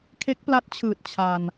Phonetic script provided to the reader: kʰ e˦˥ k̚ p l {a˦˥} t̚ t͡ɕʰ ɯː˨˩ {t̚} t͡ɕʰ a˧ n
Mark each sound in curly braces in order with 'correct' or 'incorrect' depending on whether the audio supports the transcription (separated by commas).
correct, correct